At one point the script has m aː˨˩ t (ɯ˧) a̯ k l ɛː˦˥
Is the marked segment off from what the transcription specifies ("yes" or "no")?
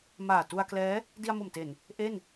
yes